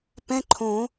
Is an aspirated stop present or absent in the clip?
present